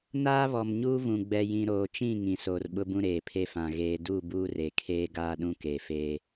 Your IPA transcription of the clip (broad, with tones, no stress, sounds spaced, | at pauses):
n aː˦ β ɔ˨ m ɲ uː˦ v ũ˨ ɡ͡b ɛ˨ j ĩ˨ ɾ oː˨ t͡ʃ ĩ˦˨ ŋ ĩ˨ s oː˨ r ɓ ʊ˦ b ũ˦ ɾ eː˨ pʰ e˦ f ã˨ ɣ eː˨ d u˦˨ b uː˦ r e˨ kʰ eː˦ ɡ aː˦ ɗ ũ˦ k e˨ f eː˦